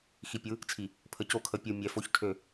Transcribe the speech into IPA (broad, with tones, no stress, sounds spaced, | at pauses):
x i˨ pʲ ɯ˨˦ | t͡sʰ i˨ | pʰ ə˨ c o˦˨ kʰ ə˨ pʲ ɯ˨ mʲ ɛ˨ f o˦ ç tʰ ø˦˨